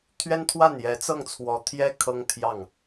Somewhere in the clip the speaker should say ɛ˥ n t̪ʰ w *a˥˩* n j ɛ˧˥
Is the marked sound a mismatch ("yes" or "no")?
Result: no